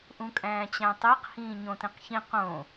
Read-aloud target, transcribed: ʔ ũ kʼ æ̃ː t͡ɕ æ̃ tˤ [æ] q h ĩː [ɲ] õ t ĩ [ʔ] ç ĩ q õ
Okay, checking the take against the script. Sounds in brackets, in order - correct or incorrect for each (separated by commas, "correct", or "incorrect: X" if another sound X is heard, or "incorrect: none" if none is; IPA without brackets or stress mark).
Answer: correct, correct, incorrect: q